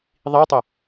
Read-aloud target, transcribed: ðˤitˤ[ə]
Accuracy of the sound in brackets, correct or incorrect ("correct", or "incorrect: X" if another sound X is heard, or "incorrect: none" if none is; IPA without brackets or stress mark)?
correct